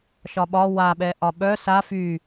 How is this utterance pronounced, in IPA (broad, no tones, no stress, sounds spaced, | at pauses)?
ʃ ɒ ɓ ɒ w a ɓ ɛ ʔ ɒ ɓ œ s a f y